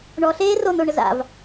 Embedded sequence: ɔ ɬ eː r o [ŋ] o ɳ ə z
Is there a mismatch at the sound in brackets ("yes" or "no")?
yes